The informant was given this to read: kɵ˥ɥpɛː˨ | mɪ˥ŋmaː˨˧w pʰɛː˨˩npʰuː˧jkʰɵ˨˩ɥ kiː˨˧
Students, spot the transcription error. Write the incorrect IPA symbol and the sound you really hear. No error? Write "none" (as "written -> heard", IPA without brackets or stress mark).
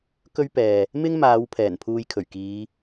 none